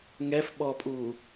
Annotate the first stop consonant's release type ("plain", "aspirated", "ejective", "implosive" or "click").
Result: implosive